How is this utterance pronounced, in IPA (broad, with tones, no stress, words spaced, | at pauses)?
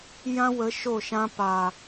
jã˦wə˨˦ ʃo˦˨ʃã˧ pa˨